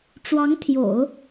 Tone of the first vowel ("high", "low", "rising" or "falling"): rising